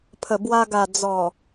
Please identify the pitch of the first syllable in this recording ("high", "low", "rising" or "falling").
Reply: low